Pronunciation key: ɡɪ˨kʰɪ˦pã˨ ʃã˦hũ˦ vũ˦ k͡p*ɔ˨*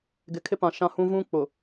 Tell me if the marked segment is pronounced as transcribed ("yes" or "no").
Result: no